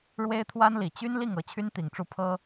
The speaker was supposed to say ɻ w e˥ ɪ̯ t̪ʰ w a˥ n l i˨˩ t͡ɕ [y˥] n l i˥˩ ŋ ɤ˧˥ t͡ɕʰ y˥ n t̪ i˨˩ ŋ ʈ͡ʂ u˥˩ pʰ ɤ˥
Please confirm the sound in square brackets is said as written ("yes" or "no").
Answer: yes